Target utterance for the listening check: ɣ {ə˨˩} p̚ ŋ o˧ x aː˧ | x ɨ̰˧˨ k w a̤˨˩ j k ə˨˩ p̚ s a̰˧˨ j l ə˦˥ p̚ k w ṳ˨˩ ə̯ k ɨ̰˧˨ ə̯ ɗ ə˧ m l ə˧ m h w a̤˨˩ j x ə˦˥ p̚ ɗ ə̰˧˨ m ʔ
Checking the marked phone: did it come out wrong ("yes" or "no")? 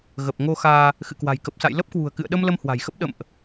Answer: no